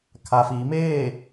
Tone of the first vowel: low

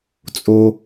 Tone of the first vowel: low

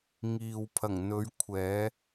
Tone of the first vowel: low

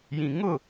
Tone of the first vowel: low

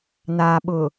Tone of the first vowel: low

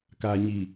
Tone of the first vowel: low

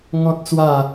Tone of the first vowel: high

